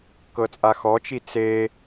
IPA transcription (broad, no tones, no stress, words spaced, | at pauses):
kɤt͡sʼaxɔt͡ʃi t͡se